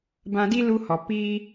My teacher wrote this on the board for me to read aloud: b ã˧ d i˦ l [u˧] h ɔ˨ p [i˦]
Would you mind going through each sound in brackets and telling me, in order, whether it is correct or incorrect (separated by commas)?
correct, correct